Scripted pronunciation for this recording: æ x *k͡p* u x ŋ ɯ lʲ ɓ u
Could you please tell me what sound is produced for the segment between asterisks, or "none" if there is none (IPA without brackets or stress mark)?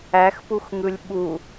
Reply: p